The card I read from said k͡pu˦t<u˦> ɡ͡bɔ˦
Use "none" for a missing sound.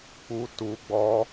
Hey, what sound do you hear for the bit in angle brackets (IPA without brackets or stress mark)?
u˦